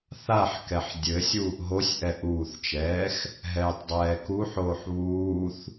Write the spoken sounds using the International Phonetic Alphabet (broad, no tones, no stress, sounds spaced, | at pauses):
θ a ħ k ɛ ħ dʲ ɘ sʲ uː ʔ ɦ o sʲ ʔ ɛ ʔ uː θ t͡ʃ ɛː x | ɦ ɛː tˤ dˤ ɛː k u ħ oː ħ β uː θ